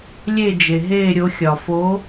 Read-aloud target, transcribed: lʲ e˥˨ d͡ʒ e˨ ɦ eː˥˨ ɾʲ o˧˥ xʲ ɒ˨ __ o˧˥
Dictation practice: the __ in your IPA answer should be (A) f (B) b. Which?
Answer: A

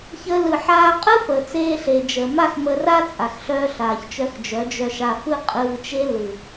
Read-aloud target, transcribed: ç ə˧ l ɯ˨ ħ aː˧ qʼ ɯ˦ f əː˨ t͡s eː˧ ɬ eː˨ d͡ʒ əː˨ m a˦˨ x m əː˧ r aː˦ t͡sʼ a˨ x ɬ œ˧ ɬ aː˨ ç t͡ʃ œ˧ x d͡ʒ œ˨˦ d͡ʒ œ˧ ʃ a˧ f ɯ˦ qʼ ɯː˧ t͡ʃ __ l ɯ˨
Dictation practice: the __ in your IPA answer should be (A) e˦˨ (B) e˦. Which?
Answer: B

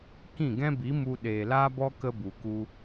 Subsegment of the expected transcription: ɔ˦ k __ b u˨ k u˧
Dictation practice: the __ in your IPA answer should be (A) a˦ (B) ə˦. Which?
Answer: B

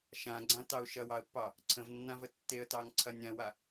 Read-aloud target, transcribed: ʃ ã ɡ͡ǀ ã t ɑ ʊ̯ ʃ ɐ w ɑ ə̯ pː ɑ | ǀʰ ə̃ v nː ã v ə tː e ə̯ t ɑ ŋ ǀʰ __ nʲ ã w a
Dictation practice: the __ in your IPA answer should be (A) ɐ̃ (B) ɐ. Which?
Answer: B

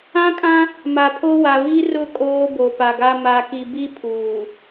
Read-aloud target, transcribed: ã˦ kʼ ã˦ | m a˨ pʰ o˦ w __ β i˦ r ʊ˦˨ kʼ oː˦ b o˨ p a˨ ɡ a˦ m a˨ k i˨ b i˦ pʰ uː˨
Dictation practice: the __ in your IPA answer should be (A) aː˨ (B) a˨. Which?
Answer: B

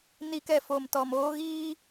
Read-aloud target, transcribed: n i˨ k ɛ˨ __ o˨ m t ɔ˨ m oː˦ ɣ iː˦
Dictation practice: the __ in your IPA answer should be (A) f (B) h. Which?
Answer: A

